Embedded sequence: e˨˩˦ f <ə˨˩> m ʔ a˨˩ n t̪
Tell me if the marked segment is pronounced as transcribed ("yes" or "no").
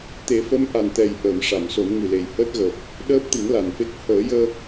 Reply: no